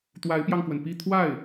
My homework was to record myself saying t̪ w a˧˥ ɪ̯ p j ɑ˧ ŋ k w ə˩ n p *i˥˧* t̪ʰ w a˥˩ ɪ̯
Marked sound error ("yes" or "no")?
no